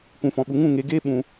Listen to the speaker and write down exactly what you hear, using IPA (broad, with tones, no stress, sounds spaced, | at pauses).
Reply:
kʷ ũ˨ f ɔ̃˨ ɓ u˨ ŋ ũ˦˨ ŋ e˨˦ ɡ eː˦ ɓ ũ˧